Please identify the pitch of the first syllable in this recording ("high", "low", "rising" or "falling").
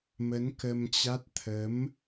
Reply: rising